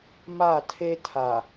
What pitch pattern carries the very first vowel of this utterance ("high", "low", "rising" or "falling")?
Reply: falling